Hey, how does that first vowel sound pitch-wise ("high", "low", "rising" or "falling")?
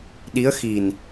rising